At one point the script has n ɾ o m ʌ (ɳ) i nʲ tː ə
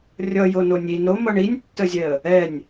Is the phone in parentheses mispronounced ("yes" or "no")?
no